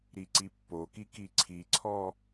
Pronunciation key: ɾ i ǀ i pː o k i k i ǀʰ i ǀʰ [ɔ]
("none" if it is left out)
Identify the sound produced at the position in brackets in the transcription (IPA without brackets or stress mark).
ɔ